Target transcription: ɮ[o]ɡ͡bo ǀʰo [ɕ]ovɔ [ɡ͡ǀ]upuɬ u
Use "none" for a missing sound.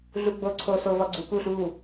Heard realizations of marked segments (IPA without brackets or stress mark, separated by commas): u, s, ɡ͡ǀ